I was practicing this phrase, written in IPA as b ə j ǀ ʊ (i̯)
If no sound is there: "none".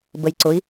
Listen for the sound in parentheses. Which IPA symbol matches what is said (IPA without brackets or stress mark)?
i̯